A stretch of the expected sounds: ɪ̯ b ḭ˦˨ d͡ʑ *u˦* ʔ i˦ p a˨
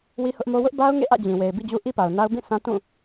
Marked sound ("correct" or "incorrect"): correct